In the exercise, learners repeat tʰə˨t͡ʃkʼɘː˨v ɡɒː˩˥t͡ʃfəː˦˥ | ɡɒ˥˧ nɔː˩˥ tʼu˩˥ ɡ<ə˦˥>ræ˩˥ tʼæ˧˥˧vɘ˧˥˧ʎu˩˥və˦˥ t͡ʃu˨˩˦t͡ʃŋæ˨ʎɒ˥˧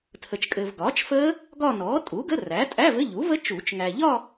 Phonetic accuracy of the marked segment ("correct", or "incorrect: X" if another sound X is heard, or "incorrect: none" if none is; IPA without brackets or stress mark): incorrect: ə˧˥˧